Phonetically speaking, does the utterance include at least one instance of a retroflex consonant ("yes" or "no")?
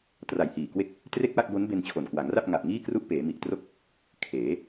no